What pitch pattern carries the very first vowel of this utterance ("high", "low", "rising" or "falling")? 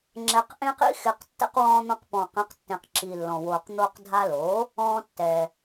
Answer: low